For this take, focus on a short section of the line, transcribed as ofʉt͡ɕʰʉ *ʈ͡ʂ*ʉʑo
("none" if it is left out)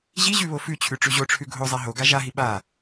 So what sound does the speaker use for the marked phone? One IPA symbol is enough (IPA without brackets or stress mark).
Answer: ʈ͡ʂ